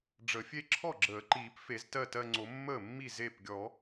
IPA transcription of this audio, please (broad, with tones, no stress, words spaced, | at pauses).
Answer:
ɖ͡ʐə˨˩˦fʲe˥˧ ǁʰɔ˥˩ɡ͡ǁəː˨˩˦ǃiː˨˩˦p fe˨˩˦z tɜ˥˩tɜ˥˧ŋ͡ǀo˨˩˦ mːəː˥˩mːi˥˩ ze˥˩p ɡʲɔ˨˩˦